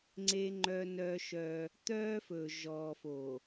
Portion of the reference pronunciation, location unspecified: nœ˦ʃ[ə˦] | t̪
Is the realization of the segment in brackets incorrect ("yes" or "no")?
yes